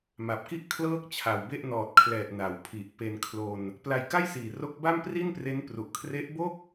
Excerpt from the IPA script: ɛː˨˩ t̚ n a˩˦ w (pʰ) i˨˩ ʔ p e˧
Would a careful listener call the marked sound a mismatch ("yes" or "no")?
no